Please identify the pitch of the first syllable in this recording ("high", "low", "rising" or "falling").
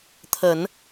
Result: low